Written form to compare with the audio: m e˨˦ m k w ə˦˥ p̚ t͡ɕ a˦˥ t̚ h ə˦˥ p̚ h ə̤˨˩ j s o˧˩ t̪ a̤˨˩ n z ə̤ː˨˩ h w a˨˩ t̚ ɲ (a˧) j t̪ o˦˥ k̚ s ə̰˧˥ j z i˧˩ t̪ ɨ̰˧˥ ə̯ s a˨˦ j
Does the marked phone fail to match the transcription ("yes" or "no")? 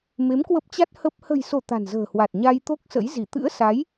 no